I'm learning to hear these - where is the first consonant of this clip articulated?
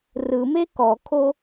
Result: tongue tip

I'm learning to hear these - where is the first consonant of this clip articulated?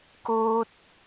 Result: velum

